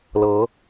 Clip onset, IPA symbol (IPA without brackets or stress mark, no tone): l